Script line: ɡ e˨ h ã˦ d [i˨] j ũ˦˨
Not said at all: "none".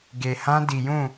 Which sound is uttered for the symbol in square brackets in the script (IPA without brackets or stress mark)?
i˨